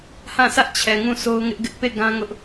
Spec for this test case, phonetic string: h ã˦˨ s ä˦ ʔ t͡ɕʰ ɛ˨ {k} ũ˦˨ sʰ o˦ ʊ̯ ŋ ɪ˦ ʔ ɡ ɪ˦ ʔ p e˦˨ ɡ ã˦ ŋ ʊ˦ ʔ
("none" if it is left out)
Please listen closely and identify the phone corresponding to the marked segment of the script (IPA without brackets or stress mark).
ŋ